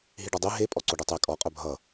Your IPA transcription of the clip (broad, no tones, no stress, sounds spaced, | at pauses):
ɦ i ɖ ʌ dˤ e ɦ e pʼ ɔ ǀ o ɖ ɛ tˤ ɛ kʼ ɔ qʼ œ bʱ ʌ